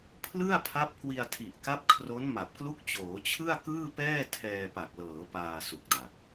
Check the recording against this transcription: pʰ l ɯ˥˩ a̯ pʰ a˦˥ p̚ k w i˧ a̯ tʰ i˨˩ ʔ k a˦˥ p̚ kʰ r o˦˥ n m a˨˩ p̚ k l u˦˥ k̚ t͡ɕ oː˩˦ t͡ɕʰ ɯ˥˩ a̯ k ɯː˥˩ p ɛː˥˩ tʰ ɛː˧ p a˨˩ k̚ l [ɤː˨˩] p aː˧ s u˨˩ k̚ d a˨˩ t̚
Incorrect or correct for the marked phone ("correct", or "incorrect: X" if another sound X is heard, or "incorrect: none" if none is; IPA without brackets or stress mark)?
incorrect: ɤː˩˦